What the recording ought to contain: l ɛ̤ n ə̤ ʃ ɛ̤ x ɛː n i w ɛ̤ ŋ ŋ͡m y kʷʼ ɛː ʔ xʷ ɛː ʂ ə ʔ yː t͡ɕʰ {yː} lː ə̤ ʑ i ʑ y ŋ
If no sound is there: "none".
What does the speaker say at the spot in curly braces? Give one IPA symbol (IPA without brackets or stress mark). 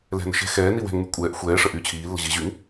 iː